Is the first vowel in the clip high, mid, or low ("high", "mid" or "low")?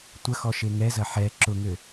low